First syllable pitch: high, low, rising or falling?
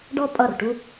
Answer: falling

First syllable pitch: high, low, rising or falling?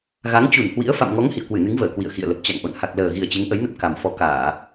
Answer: rising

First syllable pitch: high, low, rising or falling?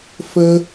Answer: high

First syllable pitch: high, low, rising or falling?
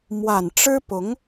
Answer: low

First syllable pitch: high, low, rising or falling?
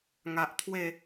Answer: low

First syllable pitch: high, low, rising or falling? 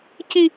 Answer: high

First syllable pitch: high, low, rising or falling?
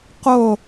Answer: low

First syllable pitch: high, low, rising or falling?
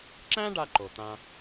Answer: high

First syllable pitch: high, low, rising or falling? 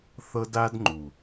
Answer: high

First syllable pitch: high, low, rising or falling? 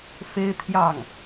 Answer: high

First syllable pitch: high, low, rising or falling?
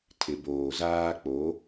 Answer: low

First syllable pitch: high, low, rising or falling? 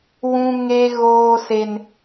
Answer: high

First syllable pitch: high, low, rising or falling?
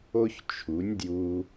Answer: high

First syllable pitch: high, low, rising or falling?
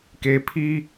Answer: low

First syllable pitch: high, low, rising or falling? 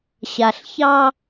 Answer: low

